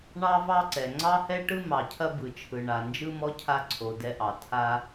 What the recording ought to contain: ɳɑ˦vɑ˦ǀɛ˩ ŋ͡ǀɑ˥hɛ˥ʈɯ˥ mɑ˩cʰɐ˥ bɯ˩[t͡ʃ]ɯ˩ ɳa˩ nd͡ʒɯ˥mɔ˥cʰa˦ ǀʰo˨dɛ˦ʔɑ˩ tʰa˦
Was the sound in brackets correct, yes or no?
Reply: no